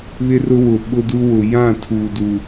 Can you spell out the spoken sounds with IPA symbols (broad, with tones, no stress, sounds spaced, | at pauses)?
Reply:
β ɪ˦ r ʊ˦ w ʊ˨ ɓ ʊ˦ d u˦ w ʊ˨ j ã˦˨ tʰ uː˨ d u˨